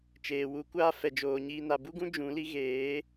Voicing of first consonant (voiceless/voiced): voiceless